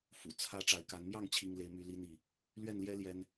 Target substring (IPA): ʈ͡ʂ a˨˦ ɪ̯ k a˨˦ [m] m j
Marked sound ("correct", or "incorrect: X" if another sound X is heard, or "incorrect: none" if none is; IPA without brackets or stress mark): incorrect: n